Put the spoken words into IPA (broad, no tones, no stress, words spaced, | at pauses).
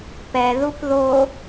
pɛðup ðo